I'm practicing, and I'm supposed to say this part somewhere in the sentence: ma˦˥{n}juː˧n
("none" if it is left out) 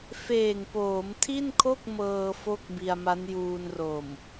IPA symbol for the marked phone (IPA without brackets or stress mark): n